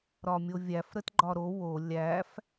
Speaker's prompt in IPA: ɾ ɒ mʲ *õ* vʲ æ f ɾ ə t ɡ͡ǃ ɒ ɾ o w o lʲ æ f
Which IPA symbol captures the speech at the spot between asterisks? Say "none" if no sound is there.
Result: o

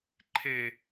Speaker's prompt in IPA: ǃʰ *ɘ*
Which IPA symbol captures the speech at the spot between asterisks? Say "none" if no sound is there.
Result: e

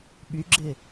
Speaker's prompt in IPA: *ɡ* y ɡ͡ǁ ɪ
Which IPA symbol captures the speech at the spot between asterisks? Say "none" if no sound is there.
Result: ɓ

